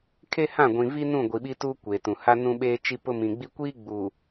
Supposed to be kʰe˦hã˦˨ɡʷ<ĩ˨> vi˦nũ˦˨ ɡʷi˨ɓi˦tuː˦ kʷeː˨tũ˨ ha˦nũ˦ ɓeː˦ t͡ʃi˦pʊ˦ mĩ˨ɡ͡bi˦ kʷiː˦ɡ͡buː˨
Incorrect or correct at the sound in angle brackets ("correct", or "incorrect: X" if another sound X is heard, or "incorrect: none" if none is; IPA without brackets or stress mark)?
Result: correct